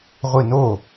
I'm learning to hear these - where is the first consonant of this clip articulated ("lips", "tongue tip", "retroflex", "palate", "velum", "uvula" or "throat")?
uvula